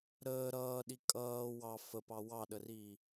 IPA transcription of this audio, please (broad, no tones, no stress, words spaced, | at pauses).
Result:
ɾəː ɾʌːɗi kʼʌː wɑ fəpɑ wɑɗəriː